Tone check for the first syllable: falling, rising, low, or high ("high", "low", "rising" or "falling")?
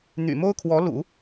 low